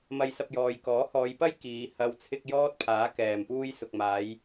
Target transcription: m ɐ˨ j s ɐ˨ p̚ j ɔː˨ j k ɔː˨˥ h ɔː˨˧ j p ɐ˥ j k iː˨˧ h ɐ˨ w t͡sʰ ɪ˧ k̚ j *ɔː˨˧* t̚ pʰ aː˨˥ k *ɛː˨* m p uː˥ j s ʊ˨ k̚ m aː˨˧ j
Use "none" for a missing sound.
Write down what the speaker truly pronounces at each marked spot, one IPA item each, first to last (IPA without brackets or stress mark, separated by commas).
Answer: ɔː˥, ɛː˨